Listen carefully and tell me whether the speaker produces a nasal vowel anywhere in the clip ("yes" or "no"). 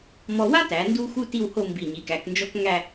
no